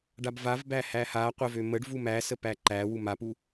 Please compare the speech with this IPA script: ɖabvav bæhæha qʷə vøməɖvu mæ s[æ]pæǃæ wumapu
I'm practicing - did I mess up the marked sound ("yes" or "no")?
yes